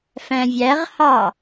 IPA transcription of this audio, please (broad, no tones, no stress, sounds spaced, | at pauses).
f æ̃ vʲ æ ʁ h ɑ